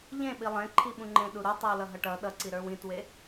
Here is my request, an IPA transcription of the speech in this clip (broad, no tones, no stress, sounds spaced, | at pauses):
ʎ ẽ ɓ i lˠ ẽ ǃʰ i ɓ ũ ŋ͡ǃ ẽ ɗ u ɾ u tˤ i w l ʌ ɦ ʌ ʈ ʌ ɗ ʌ ǀ i ɾ ə˞ w ĩ t w e